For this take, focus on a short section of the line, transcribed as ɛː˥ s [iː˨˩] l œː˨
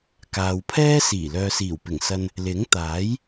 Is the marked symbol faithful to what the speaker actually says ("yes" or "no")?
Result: yes